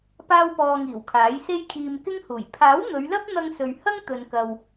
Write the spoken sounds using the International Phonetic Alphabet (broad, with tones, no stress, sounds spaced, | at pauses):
p aː˥ w p ɔː˧ ŋ iː˨˩ w kʰ aː˨˥ j s e˧ j kʰ iː˨ m k ɪ˥ ŋ h uː˨˩ j pʰ aː˨˥ w n̪ ɵ˨˧ ɥ l ɐ˥ p̚ n̪ ɐ˧ ŋ s ɵ˨ ɥ h ɐ˥ ŋ t̪ ɵ˨ n k ɐ˨ w